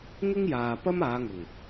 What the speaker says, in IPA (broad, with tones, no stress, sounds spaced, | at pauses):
ŋ ɪ˥ ŋ j aː˨ p ɐ˥ m aː˨˧ ŋ ʊ˨˩ ŋ